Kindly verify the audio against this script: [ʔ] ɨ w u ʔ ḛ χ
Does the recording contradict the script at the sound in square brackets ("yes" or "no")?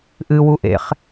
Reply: no